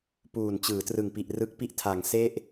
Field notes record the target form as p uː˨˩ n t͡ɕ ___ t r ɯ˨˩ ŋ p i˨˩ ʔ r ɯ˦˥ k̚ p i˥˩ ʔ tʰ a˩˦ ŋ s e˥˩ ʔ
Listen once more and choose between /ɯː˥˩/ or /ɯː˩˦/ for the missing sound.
ɯː˩˦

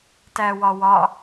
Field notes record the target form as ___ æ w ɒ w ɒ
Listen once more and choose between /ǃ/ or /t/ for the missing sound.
t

